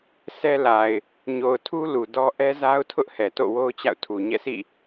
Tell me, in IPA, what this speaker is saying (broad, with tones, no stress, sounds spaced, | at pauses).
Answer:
s ɛ˦ l a˨ ɪ̯ | ɲ o˨ ʊ̯ tʰ u˦ l u˨ d ɔ˦ ʔ ɛ˦ z a˦ ʊ̯ tʰ ʊ˦ ʔ h ɛ˨ t o̰˦˨ w o˦ ʊ̯ t͡ɕ a̰˦˨ ʊ̯ tʰ u˨ ɲ ɛ̰˦˨ sʰ ḭ˦˨